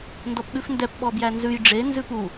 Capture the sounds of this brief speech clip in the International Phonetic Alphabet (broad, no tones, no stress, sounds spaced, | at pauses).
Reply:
n d ɔ p ɠ ʉ f n d ɛ p ɓ ɔ b j æ n z ʉ j ɖ͡ʐ e n z ʉ p u